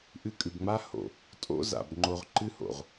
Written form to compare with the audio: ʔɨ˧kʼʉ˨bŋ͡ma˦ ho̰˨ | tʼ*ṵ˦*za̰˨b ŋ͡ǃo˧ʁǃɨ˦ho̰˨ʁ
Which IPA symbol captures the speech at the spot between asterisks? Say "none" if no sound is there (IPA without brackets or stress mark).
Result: o̰˦